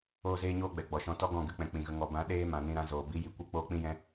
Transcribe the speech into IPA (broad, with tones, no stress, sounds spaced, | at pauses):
oː˦ z eː˦ ɲ oː˦ ɡ͡b ɛ˨ ɡ͡b ɔ˨ ʃ ɔ̃˧ t ɔ˦ ɡ ɔ̃˦˨ ɡ ɨ˧ k͡p ɛ̃˨ k͡p ĩ˨ ɣ ə˧ ŋ ɔ˨ b ã˨˦ ɗ eː˦ m ã˨ n ĩ˧ ɾ ã˧ z oː˨ b i˨˦ j i˨ kʷ ɨ˦ k͡p oː˦ k͡p ĩ˦ j ɛ̃˦